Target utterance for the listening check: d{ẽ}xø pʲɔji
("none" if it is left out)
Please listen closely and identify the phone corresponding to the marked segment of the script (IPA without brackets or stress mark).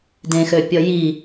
ẽ